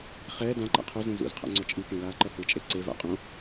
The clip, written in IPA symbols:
χ ɛː d ã ǃ a̰ qʰ o z ũ z ṵ z qʰ a̰ ŋ͡ǀ o t͡ʃʼ i k ẽ l aː ǃ ʌ h ɯ t͡ʃʼ e ǀ e v a̰ qʼ õ

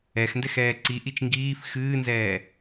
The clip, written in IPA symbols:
ɛ x n d ɛ x ɛː ǀ i ʔ i t͡ʃ ŋ ɡ iː f x ɨː n z ɛː

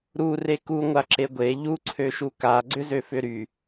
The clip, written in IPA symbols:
ɾ u r e k u ŋʷ a ǁ e ɡʷ e ʎ u ǀʰ ø ʃ u k a ɡ͡ǀ ʏ z ø f ʏ ɾ y

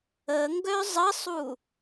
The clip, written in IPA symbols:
ə ŋ ɡ œ zˤ ə sˤ u

